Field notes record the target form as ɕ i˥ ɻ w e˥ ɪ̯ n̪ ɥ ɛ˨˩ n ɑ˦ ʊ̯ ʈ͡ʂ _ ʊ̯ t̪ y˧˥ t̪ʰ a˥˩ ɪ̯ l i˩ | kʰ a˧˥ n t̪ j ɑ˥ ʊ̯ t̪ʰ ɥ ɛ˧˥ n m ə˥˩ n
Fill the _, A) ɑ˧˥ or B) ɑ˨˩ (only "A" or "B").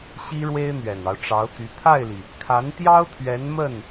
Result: A